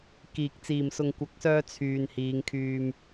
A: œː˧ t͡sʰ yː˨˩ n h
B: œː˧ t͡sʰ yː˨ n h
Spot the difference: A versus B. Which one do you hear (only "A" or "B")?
B